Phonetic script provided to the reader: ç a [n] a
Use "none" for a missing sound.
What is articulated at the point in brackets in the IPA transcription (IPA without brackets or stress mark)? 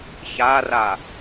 r